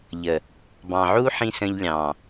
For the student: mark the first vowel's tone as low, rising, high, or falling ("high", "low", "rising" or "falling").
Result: low